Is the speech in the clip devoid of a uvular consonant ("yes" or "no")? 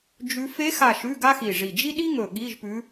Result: yes